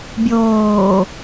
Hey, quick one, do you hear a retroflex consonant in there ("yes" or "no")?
no